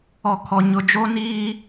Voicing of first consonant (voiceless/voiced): voiceless